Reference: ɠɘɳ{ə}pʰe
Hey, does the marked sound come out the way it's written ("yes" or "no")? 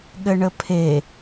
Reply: yes